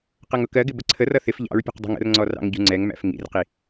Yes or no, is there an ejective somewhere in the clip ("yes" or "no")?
no